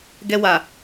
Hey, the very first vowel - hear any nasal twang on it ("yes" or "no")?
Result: no